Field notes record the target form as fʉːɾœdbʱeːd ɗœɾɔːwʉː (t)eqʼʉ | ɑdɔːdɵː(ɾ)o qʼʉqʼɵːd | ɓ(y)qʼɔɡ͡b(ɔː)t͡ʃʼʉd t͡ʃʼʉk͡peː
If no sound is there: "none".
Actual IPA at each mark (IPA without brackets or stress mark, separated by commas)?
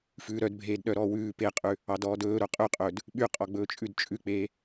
p, ɾ, y, ɵː